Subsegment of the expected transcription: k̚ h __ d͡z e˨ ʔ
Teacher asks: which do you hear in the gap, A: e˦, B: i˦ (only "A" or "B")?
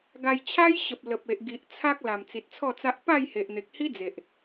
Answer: B